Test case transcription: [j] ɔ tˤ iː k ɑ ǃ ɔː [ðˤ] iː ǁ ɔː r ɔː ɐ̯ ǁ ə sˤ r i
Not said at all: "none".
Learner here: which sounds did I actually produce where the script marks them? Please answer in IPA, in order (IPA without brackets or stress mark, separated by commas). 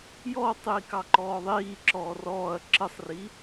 j, ðˤ